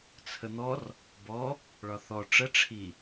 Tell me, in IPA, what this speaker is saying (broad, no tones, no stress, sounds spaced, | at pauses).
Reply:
t͡sʰ ə n̪ ɔ r | b ɔ | ɭ ɒ θ ɔ ʈ͡ʂ ə ʈ͡ʂʰ i